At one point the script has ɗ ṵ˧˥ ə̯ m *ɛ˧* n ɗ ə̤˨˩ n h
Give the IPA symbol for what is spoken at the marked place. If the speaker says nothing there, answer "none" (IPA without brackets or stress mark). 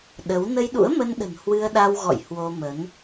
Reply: ə˧